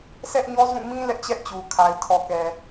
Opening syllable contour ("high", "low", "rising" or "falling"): high